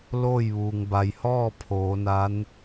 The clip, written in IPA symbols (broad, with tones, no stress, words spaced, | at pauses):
loː˥˨jʋuː˩ŋba˩jhɔː˥˨ pʰoː˩˧na˧˥n